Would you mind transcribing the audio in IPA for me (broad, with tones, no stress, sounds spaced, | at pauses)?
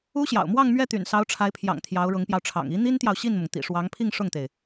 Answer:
u˥ ɕ j ɑ̰˨˩ ʊ̯ m w ɑ˥˧ ŋ m ɥ ɛ˥˩ t̪ y̰˨˩ n s ɑ˧˥ ʊ̯ ʈ͡ʂʰ a˧˥ ɪ̯ pʰ j ɑ̰˨˩ ŋ t̪ʰ j ɑ˧˥ ʊ̯ ɻ ʊ˧˥ ŋ p j ɑ˧ ʊ̯ ʈ͡ʂʰ ɑ̰˨˩ ŋ i˧˥ n̪ i˥ n t̪ j ɑ˨ ʊ̯ ɕ i˥˩ n m ʊ˩ ŋ t̪ ḭ˨˩ ʂ w ɑ˧˥ ŋ pʰ i˥˧ ŋ ʂ ʊ˥˩ ŋ t̪ e˩ ɪ̯